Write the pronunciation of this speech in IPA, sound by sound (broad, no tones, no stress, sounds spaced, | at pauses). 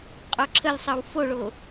qʼ o ǁʰ ə lʲ sˤ ɤ w f o ɭ o